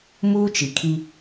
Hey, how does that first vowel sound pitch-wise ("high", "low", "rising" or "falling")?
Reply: high